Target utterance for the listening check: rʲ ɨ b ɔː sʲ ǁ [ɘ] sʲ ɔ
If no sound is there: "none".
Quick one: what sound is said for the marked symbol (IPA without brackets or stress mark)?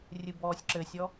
ɘ